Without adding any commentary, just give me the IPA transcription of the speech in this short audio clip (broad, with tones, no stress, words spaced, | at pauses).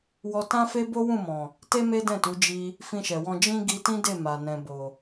wɔ˧tã˦fe˦ bo˦wũ˦˨mɔ̃˨ | te˦me˦dɛ̃˦˨tu˨˦ d͡ʒi˧ | fĩ˧ʃɛ˨wɔ̃˧ d͡ʒĩ˦ ɡi˧tĩ˦de˦˨ ma˨ nɛ̃˨bo˨